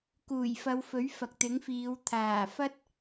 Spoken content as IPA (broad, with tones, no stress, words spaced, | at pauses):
kuː˨˩jfɐ˨˧wfɵ˨˥ɥ fɐ˨k̚t̪ɪ˨˥ŋfiː˨˧w t̪ʰaː˨˩fɐ˥t̚